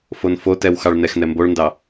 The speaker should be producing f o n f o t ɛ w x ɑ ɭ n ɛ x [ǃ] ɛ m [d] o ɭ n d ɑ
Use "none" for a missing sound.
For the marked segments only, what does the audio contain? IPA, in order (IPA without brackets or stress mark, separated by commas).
n, b